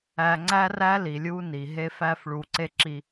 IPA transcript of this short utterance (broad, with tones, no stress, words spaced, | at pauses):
æ˧ŋ͡ǀæ˦ræ˦li˨ lʲu˦ni˨ ɦe˧fæ˧f ɭu˨ǀe˧ ǁi˧